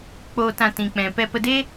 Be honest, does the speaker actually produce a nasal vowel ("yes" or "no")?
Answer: yes